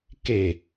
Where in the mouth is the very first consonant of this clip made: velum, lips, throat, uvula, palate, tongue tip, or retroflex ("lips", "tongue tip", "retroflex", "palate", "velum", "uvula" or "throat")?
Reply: velum